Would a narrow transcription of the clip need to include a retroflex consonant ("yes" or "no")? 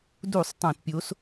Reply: no